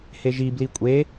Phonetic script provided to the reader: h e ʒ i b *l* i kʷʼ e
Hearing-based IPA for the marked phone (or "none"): l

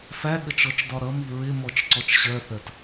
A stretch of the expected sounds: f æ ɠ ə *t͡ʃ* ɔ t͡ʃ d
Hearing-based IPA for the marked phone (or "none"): t͡ʃ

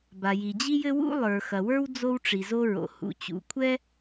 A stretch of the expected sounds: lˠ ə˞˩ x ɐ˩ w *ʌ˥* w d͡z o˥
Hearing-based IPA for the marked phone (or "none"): ə˞˥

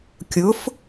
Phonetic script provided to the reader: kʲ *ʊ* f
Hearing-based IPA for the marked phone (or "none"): ʊ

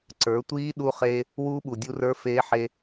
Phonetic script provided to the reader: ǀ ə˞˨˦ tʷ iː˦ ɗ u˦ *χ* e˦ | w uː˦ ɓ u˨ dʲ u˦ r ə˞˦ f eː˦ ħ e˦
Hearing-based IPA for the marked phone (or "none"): χ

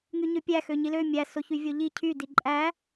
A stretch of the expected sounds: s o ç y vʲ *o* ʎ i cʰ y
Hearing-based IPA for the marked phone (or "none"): o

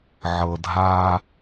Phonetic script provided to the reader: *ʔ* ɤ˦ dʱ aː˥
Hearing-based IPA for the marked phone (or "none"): ʕ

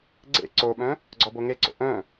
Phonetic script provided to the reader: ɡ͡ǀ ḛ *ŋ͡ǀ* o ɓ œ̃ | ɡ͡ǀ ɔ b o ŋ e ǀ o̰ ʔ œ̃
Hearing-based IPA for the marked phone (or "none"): ǀ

